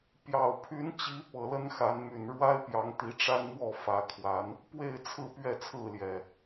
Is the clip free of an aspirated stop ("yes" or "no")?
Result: no